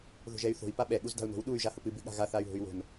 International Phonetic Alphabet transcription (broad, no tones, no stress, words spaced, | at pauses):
ðo̤ʒɛy̯θo̤i̯ paɓɛ ɠuzda̤u̯no̤w ɗuy̯ ʒahʊpɨ bɨɠa̤ɣa θay̯ɦo̤y̯wo̤n